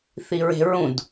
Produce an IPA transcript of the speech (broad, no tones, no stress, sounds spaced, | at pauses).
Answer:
θ i ɹ e̤ ɹ ũ d